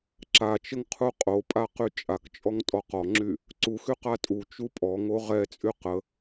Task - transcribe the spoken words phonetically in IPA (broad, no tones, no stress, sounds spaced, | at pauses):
ǁ a t͡ʃ ə ŋ qʰ u qʼ o pʼ a q y t͡ʃʼ a k t͡ʃʼ ɔ ŋ tʼ ɔ q ɔ ŋ͡ǁ y | ǀ u x y q a tʼ u t͡ʃ u pʼ ɔ ŋ o ʁ ɛ t͡sʼ y q ə